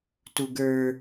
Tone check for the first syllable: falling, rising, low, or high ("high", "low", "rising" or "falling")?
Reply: high